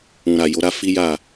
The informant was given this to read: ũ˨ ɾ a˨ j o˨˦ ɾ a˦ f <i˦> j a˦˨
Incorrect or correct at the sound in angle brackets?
correct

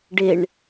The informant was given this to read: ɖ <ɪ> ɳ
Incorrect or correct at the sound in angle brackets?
correct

